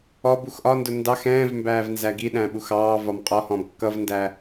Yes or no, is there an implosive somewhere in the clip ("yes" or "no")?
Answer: yes